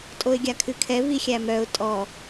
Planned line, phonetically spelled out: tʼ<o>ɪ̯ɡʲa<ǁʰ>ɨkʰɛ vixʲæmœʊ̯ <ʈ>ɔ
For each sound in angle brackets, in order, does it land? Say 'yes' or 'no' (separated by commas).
yes, no, no